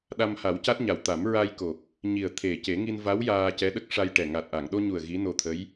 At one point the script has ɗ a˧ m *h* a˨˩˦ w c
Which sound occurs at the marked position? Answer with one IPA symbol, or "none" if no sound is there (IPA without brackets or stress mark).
h